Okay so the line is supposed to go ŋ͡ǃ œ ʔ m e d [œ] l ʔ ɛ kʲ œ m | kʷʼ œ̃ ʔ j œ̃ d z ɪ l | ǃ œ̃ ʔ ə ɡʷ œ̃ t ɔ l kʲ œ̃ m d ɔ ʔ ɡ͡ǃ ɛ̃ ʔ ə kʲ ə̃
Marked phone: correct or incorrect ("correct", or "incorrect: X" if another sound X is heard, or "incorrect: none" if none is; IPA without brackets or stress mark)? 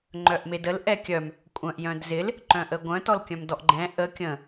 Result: incorrect: ə